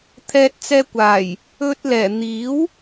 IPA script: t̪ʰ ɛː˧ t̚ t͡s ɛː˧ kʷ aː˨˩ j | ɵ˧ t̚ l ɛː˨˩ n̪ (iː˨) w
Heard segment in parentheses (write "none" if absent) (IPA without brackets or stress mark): iː˨˥